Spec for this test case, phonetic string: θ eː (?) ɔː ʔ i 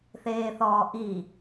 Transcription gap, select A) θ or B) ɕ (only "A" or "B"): A